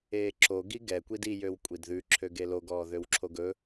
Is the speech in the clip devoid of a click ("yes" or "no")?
no